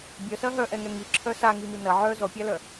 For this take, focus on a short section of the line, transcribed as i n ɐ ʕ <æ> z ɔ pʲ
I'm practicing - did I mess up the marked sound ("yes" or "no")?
yes